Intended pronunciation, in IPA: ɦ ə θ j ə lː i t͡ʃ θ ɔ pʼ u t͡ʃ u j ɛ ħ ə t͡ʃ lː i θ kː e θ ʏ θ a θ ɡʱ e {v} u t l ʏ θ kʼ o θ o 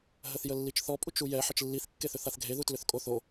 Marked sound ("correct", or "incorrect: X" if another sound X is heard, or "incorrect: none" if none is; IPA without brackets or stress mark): incorrect: ð